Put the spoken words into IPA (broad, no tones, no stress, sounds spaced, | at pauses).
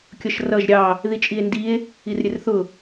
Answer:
kʲ ʌ ʃ r ʌ ʒ ɾʲ ɑ | ð i t͡ʃʼ i e̯ n d i e̯ | i r ɾʲ ɛ r θ ʊ